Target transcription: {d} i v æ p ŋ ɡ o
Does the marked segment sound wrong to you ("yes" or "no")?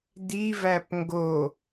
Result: no